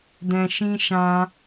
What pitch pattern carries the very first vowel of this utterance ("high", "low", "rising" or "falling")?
low